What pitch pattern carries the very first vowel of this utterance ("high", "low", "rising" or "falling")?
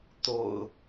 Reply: low